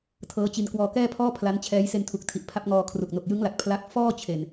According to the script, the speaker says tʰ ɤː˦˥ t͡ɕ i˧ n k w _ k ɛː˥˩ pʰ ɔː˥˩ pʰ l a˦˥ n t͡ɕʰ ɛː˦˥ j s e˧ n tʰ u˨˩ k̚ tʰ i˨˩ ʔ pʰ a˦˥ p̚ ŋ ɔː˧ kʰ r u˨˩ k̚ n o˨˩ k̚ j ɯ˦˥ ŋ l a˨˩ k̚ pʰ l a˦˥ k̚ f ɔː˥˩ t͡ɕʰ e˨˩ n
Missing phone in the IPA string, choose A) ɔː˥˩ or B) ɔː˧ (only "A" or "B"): B